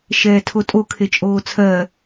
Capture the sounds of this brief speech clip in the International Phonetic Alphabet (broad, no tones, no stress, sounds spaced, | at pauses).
ʃ ɛː tʰ o tʼ o kʰ e t͡ʃʼ oː t͡sʰ ɜ